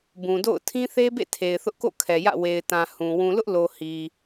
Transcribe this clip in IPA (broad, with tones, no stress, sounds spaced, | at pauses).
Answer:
b ũ˨ d o̰˦˨ ʊ̯ tʰ ĩ˦ θ e˦ b ḛ˦˨ tʰ e˨ ɪ̯ θ ʊ˦ ʔ k o̰˦˨ kʰ ɛ˨ j ä̰˦˨ w e˨ ɪ̯ t ã˨ h ũ˨ w ũ˨ l ʊ˦ ʔ l o˨ h i˨